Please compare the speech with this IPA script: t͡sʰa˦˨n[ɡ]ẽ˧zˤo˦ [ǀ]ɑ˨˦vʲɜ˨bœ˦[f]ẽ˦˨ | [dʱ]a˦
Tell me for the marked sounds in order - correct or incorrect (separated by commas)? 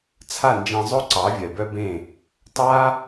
incorrect, correct, incorrect, incorrect